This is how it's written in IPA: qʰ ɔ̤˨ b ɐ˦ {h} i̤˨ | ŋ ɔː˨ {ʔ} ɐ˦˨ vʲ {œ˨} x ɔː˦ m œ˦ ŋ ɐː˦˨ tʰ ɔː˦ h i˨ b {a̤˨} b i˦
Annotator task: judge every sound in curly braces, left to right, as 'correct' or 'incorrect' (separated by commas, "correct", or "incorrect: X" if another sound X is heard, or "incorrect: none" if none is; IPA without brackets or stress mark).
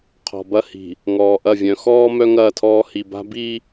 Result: correct, correct, incorrect: œ̃˨, incorrect: a̤˦